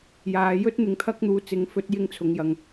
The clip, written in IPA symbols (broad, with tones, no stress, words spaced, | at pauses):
jaː˨˧jɵ˥t̚ n̪ɪ˨ŋt̪ʰɐ˧k̚n̪uː˨ t͡sɪ˨˧ŋfɵ˨˥t̚ jɪ˧ŋt͡sʰʊ˨ŋjɐ˨ŋ